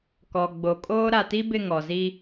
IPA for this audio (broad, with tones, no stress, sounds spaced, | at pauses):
k ɔ˨ ɡ͡b o˨ kʼ oː˦ ɾ a˨ t i˦ b ɪ˦˨ ŋ ɔ˨ z i˦